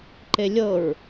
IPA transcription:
ǃ e lʲ ɤ ɹ

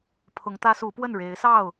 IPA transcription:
pʰ ʊ˨˦ ŋ t̪ ä˦ s u˨˦ p w ə˥˨ n ɻ e˨˦ ɪ̯ s ɑ˥˨ ʊ̯

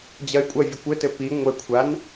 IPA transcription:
d͡ʑ ɐ y̯ kʷʼ ɐ vʲ ɘ kʷ ɘ t ɘ p i ŋʷ ɘ kʷʰ a n

